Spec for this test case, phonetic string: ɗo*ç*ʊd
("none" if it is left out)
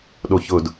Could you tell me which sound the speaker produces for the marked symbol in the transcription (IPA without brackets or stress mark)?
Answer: ç